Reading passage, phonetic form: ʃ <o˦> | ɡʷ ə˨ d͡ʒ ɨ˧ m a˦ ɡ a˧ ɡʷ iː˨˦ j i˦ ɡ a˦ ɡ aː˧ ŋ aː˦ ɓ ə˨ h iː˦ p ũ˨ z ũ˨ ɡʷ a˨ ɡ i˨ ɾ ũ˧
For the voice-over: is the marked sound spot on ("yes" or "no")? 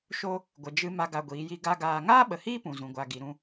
yes